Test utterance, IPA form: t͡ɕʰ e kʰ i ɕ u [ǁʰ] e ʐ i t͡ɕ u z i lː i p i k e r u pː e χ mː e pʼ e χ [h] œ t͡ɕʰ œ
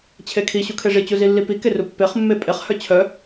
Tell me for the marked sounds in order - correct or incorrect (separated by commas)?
incorrect, correct